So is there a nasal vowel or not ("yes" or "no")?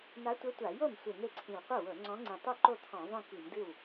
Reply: yes